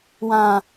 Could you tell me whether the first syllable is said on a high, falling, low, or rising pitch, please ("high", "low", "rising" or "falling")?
low